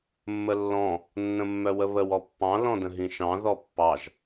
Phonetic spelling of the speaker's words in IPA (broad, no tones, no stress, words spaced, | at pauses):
mːəlːɔ̃ | nːə̃mːœwəβəw ɔpːɑ̃ lɔ̃də̃ɦĩʃɑ̃ ðɔpːɑʒ